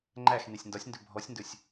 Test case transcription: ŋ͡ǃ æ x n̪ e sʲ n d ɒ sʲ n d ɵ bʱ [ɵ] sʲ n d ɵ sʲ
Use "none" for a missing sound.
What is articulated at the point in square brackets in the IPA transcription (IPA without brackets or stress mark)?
ɔ